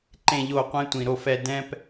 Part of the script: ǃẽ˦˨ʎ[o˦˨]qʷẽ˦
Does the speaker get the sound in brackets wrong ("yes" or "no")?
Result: no